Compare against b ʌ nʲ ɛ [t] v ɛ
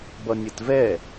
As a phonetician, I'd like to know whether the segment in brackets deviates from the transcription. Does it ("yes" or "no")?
no